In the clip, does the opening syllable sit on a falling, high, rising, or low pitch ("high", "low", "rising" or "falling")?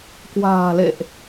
low